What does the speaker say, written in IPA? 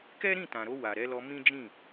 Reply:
kɛ˦ɾĩ˦˨tã˨ɾo˧ wa˨ɾɛ˨˦lɔ˧ mĩ˦d͡ʒĩ˦˨

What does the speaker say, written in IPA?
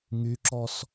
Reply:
ŋyǁɔs

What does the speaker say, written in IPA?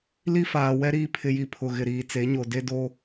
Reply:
li˦faː˨ wɛ˦ɾiː˦ pʰɪ˦ji˦pʰʊ˦˨ɣɪ˦˨ ɾiː˨t͡se˨˦ɲo˨ de˦do˦

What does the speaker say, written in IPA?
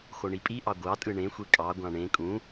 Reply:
xoɳipʼiʔɑ ɡʷɑ tʼɯɳẽxʷe kʼɑ ɡʷɑ̃ɳẽ kʼũ

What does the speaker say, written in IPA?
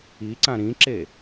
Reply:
iǀã ɾĩǁe

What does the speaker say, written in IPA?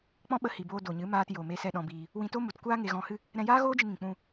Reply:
k͡pɔ̃˦ɓə˧hi˨boː˧ do˨ɲɨ˨˦maː˧t jo˨me˧sɛ˧ ɗɔ̃˧biː˧ | wĩ˧to˦ mu˨tkʷaː˦ ŋe˧ɣɔ̃˧hɨ˦ | ɾɛ̃˧jaː˦ɣoː˦d͡ʒɨ˧ ŋĩ˨k͡pũ˧

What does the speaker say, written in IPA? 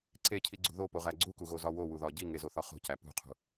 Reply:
ǀecʰiɡ͡ǀṳ ðopoʁæ ɡ͡ǀukuɣozɒ wowuðɒ ɟiŋezoθɒ χo̤cæ pṳqʰṳ

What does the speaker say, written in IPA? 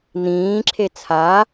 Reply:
n̪ĩːǁʰe t͡sʰa

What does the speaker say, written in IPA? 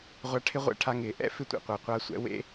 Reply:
ʁʷa˧ʈʰɪ˦ʁʷɛ̰˧ʈʰa˧ ŋɪː˨ʔɛ̰˦ fɪ˦tʷḛ˨qʷa˨ qʷa˧sʷɛ̰˧wḛ˦

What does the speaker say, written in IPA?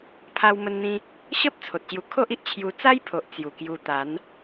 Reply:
pʰa˧wmə˧nn̪ĩ˧ | ɕə˦p̚ t͡sʰo˨t̚ɕju˧ kʰo˦ʔ i˨ʔ t͡ɕʰju˧ t͡sa˦jpʰo˨ʔ t͡sju˨˩kju˧t̪a˨˦n

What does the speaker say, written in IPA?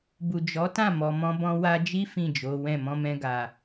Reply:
bu˨d͡ʒɔ˨˦tã˦˨ mɔ˨mɔ̃˧bɔ̃˧ wa˧d͡ʒi˦ fĩ˦˨d͡ʒo˨˦wɛ̃˦˨ mɔ̃˧mɛ̃˧ɡa˨

